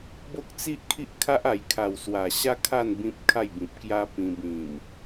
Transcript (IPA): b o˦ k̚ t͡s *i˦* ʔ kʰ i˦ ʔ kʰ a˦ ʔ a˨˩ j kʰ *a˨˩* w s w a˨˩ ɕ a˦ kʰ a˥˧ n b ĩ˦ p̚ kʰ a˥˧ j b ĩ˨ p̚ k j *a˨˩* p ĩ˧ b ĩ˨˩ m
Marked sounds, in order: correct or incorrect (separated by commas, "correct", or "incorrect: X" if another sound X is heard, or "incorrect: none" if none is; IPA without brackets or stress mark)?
correct, correct, incorrect: a˦